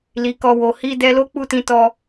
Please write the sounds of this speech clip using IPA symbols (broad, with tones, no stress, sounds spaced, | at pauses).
l i˨ k ɔ˧ w o˨ h i˧ d ɛ˧ l o˦ k͡p u˦˨ t ĩ˧ t ɔ˧